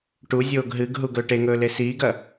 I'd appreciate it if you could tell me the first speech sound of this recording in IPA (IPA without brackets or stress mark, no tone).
ʈ